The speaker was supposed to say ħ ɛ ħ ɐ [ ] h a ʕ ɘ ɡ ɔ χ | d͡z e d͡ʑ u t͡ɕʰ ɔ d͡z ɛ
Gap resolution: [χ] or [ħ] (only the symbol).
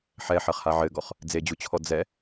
χ